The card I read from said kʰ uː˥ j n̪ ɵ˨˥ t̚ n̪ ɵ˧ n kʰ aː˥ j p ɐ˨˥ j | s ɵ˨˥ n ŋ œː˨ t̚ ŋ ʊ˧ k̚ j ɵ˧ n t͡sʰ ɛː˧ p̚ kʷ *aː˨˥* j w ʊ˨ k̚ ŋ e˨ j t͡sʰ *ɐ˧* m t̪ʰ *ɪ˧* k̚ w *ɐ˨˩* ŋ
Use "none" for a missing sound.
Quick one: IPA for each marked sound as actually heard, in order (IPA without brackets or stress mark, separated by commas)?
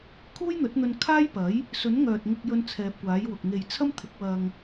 aː˨˥, ɐ˥, ɪ˨˥, ɐ˧